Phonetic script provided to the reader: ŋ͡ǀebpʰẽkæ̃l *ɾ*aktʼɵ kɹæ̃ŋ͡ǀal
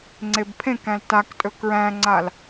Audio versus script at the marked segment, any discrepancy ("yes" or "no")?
yes